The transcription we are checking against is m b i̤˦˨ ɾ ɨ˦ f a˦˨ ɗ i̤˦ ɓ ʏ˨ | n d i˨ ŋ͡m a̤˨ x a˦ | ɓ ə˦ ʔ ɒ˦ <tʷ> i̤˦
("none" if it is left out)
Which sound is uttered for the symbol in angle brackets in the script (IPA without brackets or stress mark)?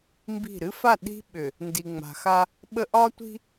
tʷ